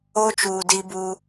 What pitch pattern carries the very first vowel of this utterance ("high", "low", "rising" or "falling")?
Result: high